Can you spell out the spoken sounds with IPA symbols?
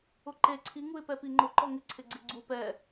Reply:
ʊǃe ǀʰi ŋuɪ̯pɛpiŋ͡ǃʊ ǃɔŋɪ ǀʰɪɡ͡ǀɪɡ͡ǀu pɛ

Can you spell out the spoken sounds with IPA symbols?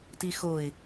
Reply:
tixoɪ̯

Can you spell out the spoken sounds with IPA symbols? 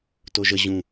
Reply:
toʒə ʑũ

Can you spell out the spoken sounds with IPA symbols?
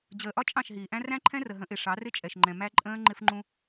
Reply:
d͡ʑəː˨ʔɒ˦ t͡ʃʼɑ̃˦˨ʃɦiː˨ʔæ̃˦ ræ̃˦ǃʰɛ̃˦rə˨ ɦə̃˨˦ʔɪ˨ ʂɑ˨˦rɪ˦ t͡ʃʼɛ˨ʃŋ͡ǃɛ̃˨ mæ˦ ǃʼə̃ː˦ ŋ͡ǃɪ˦fŋ͡ǃũ˦

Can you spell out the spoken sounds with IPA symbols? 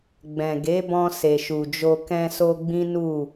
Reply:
ɡ͡bɛ̃˨ɡe˨˦bɔ̃˧ se˨ʃu˨d͡ʒo˧ kɛ̃˧so˧ ɡ͡bĩ˦nu˦˨

